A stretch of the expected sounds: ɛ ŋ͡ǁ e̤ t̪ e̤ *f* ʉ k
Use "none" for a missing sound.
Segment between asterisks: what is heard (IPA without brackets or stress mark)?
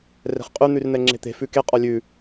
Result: f